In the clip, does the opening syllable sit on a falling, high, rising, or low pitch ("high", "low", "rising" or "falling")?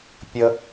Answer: low